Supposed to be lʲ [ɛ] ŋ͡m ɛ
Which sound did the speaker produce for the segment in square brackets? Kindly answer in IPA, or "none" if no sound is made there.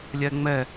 ɛ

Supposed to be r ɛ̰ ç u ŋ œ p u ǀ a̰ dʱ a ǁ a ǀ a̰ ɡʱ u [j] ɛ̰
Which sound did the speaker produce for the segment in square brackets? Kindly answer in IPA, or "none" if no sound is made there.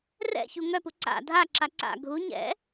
ɲ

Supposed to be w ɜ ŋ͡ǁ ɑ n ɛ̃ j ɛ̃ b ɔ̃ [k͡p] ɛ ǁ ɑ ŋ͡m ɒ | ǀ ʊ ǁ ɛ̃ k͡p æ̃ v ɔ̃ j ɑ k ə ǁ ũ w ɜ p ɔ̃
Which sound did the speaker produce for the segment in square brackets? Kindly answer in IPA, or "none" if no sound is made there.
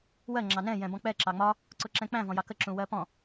k͡p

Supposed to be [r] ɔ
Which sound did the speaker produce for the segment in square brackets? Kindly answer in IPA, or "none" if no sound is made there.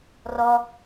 r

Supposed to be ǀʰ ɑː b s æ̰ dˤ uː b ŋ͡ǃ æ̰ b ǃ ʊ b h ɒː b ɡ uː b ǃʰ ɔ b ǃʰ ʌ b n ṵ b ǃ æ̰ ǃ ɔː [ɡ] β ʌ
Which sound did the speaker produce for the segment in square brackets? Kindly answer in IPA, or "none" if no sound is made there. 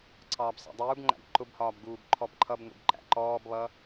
b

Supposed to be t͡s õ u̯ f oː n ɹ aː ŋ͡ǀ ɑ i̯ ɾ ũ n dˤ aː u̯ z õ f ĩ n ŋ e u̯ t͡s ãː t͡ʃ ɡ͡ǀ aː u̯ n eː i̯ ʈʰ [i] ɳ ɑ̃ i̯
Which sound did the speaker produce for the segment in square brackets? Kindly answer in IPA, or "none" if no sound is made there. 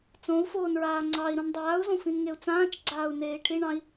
i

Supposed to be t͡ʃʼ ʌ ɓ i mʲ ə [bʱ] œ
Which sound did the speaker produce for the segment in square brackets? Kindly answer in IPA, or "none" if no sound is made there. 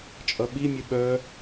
ɓ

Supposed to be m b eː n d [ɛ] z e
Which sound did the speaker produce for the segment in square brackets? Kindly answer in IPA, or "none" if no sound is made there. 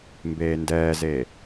ɛː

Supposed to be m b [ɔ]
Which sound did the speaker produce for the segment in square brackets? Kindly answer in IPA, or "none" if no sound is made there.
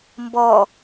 ɔ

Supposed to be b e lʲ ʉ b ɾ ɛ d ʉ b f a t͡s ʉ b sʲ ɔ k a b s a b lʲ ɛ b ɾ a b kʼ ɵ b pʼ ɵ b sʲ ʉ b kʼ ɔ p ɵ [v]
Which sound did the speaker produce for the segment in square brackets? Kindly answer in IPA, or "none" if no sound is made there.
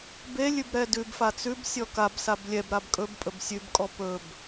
b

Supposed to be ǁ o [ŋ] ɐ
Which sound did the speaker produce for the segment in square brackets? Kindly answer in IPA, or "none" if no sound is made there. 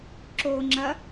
ŋ͡ǁ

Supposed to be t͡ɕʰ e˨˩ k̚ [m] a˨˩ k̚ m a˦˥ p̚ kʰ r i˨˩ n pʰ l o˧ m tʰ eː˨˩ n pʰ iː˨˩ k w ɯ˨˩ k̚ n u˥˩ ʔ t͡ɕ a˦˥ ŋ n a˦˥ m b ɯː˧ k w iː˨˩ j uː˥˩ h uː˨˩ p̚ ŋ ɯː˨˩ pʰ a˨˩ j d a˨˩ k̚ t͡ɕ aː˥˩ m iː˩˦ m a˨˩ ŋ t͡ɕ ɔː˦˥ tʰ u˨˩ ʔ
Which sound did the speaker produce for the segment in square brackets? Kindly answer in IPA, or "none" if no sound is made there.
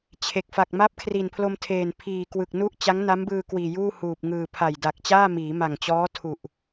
f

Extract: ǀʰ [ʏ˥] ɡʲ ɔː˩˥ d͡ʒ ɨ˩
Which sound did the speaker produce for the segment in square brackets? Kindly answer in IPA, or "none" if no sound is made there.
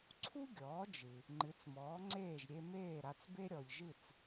u˥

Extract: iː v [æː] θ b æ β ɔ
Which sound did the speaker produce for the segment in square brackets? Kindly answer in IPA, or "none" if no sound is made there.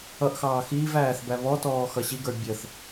æː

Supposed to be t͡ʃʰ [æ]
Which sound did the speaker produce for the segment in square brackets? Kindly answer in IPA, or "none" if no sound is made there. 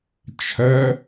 ɐ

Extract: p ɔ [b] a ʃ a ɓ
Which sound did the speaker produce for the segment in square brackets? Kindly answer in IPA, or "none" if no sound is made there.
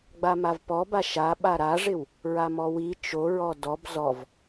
b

